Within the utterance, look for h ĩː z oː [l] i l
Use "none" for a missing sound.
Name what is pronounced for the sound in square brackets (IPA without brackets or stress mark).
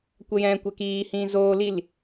l